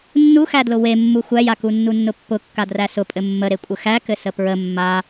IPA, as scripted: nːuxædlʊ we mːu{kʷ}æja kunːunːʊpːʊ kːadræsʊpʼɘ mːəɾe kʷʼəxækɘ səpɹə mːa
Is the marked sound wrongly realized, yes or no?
yes